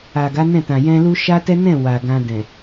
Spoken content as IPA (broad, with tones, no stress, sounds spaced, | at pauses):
a˨ ɡ a˨˦ n ɛ̃˦˨ t ã˨ j ɛ̃˧ l u˦ ʃ a˦ t ɛ˦ n ɛ̃˦˨ w a˨ ɡ ã˧ d ɛ̃˨